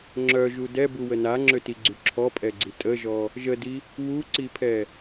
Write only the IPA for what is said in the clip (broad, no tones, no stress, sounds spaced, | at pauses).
ŋ͡ǁ œ ʒ u d ɛ b u w ə n a ŋ͡ǁ ø t i ɡ͡ǀ y ǁʰ ɔ pʼ ɛ ɡ͡ǀ i tʼ ə ʒ ɔ | ʒ ə d i | w u ǀ i pʰ ɛ